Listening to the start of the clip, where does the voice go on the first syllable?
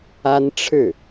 high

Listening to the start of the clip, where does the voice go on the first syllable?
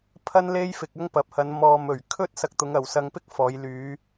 high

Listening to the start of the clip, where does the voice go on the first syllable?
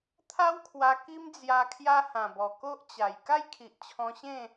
high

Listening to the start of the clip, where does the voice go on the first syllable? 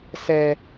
high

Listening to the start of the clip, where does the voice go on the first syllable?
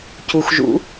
low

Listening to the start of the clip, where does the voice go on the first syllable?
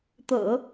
low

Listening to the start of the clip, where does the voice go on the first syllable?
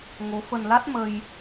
rising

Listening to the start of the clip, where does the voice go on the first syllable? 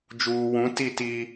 low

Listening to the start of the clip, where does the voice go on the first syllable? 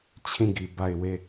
falling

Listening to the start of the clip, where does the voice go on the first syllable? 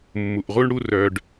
low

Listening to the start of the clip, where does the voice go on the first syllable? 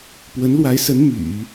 rising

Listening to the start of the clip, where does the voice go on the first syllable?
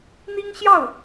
high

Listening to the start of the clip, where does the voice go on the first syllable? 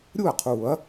falling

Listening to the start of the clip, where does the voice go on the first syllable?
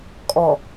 low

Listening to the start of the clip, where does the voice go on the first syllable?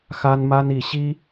high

